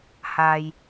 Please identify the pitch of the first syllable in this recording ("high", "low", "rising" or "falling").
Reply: low